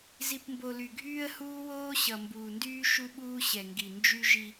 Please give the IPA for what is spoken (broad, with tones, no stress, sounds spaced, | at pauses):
z i˨ p m b o˨ l y˨ ɡʱ yː˦ ə̯ h uː˦ w oː˦ ɕ ʌ˨ m b uː˨ n d yː˦ ʃ u˦ ɓ uː˦ ɕ ɛ˨ ŋ ɡ i˨ n d͡ʒ y˦ ʒ i˦